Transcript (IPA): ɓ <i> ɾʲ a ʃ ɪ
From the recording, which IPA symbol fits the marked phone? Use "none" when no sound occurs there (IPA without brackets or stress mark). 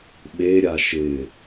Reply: e